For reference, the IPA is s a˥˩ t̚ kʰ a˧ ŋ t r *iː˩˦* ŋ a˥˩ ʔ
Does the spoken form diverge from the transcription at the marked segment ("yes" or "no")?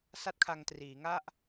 no